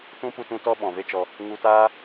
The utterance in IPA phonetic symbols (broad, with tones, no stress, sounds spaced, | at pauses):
t ũ˦ p u˧ t ũ˧ t ɔ˦ ɓ ɔ̃˨ v e˦ t͡ʃ ɔ˧ | ŋ u˧ t aː˦